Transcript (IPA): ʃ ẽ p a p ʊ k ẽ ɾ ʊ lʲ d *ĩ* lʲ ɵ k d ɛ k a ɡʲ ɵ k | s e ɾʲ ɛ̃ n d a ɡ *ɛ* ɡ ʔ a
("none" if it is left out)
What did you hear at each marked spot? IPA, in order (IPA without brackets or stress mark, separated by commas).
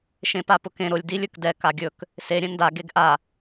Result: i, e